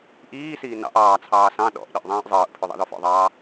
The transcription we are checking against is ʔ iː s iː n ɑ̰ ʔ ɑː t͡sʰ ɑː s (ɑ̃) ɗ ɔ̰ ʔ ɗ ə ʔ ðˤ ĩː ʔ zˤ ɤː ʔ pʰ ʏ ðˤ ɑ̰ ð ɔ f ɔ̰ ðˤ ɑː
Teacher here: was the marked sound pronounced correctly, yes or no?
yes